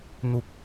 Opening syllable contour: high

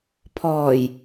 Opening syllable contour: low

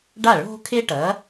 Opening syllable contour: falling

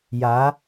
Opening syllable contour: rising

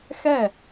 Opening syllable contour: falling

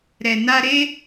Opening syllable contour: low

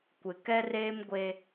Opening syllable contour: low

